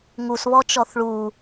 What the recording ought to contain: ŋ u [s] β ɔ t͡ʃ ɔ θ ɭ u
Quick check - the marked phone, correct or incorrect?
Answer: correct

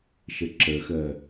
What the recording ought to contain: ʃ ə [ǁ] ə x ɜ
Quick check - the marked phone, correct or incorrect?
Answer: correct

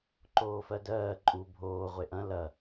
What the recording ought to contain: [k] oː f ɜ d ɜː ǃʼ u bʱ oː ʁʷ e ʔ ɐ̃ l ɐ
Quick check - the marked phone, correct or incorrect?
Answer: incorrect: ǃ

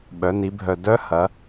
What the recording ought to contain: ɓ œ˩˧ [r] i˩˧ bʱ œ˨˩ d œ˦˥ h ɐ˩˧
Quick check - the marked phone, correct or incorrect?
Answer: incorrect: n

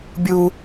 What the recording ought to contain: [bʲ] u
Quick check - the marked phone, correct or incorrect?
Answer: correct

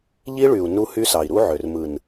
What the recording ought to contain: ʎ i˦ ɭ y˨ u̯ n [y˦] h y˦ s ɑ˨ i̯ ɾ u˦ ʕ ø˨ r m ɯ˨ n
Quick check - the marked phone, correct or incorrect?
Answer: incorrect: u˦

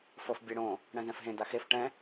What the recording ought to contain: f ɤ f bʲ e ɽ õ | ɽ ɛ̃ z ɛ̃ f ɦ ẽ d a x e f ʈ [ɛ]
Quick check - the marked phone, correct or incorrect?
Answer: incorrect: ɛ̃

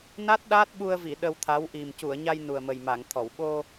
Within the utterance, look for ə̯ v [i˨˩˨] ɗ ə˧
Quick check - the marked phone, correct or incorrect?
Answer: correct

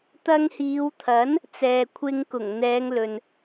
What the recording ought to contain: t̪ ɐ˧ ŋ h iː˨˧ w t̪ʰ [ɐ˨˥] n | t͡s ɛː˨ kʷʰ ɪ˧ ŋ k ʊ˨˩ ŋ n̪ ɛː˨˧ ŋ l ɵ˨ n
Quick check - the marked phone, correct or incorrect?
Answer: correct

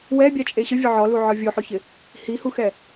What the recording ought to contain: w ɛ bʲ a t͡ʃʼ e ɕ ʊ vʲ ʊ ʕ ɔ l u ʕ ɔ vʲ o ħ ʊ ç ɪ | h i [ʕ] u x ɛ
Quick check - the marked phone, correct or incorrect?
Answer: incorrect: h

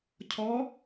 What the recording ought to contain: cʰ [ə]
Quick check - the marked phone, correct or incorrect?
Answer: incorrect: ɔ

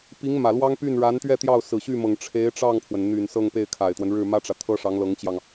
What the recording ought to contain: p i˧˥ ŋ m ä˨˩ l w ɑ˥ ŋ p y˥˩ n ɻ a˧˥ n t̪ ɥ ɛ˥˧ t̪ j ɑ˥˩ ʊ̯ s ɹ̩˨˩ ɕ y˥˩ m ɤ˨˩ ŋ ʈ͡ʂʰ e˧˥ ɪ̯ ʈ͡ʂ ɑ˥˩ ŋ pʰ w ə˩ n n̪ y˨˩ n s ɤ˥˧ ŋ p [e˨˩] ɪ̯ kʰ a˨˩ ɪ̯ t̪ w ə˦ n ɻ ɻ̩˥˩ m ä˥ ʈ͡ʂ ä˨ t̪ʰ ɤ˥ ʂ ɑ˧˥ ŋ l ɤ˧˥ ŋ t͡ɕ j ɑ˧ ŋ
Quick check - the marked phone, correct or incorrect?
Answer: incorrect: e˥˩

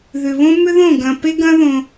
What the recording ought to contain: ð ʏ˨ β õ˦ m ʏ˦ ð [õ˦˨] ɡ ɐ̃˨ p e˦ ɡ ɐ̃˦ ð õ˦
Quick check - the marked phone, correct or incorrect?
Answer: correct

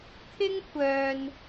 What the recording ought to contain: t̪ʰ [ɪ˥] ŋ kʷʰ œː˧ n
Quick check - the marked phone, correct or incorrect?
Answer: correct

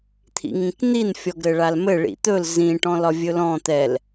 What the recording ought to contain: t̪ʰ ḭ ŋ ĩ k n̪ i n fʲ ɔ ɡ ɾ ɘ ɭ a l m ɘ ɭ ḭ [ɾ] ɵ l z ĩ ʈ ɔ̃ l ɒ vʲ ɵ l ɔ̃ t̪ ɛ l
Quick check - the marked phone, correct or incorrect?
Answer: incorrect: t̪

